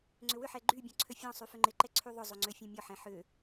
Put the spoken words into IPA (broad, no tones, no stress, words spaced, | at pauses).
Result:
ŋ͡ǀʏwʏħɛ ɡ͡ǃybʲɔ̃ ǀʰøfʲɔ̃sˤy fʏŋ͡ǃɪǃɛ ǀʰyðˤʏzˤø ŋ͡ǀøfʲɛ̃mʲɔħɛ̃ ħʏ